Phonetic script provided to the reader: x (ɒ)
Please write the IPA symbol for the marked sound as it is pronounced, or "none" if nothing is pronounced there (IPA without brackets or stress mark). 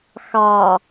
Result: ɑ